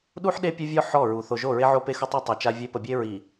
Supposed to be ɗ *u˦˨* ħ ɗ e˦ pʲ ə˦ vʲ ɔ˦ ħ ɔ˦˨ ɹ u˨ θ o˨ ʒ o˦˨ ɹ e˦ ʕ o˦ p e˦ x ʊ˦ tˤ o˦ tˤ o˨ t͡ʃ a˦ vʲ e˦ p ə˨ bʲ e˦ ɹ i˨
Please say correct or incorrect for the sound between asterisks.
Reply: incorrect: u˦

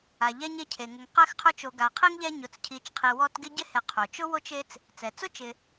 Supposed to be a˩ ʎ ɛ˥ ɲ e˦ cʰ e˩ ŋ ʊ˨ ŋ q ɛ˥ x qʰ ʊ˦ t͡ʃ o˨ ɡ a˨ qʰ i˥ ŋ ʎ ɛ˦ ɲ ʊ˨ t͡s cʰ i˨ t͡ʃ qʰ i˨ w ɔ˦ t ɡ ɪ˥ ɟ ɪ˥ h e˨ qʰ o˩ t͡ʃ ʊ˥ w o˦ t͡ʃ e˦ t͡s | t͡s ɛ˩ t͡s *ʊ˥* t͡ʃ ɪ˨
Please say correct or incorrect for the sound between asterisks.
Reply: correct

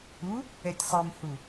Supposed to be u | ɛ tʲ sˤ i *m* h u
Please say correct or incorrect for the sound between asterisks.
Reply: correct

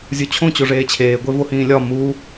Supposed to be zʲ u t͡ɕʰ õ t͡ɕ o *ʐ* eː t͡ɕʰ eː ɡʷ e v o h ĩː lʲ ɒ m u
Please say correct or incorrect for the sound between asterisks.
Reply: correct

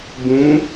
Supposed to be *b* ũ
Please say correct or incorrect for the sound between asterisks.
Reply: correct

